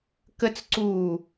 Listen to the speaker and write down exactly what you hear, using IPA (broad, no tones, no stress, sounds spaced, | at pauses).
k ə t͡s ǀ uː